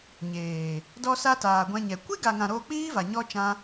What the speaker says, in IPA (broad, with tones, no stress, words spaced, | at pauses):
ɲeː˨ | dɔ˧sa˧ taː˨ɡʷɛ̃˧ɲɛ˨ kʷi˦ɡa˨ŋã˨ ɾoː˧k͡piː˦va˨ ɲɔ˦t͡ʃã˦